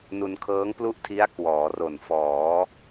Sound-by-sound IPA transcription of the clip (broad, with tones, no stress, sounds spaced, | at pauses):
n u˧ n kʰ ɤː˦˥ ŋ p l u˥˩ ʔ tʰ i˦˥ a̯ k w ɔː˩˦ r o˨˩ n f ɔː˩˦